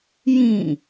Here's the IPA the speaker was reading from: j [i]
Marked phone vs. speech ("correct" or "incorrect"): incorrect